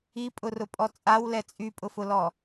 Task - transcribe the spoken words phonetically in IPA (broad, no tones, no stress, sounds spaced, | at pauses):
i pʼ ʊ r ʊ pʼ ɔ t͡sʼ a w l ɛ t͡sʼ y pʼ ʊ f ʊ l ɔ